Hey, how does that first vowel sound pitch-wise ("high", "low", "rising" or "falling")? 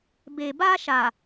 low